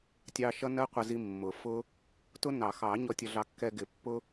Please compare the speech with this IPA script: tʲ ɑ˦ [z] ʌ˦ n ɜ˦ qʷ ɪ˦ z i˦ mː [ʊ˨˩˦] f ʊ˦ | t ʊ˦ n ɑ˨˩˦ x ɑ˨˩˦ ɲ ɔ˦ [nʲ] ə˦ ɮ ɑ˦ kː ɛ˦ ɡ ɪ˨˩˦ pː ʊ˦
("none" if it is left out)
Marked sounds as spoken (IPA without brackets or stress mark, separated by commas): ʃ, ʊ˨˩˦, tʲ